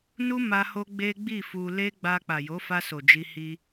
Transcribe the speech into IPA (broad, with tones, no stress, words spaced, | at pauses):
nu˦ma˧ ho˦ɡ͡be˦ɡ͡bi˦˨ fu˧ le˦ɡ͡ba˧ k͡pa˨jo˨˦fa˧so˨ d͡ʒi˧hi˧